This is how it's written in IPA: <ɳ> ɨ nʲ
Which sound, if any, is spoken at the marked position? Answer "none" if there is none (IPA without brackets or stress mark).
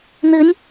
n